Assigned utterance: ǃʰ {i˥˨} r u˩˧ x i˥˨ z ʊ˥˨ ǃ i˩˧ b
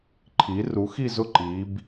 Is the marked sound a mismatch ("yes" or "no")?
yes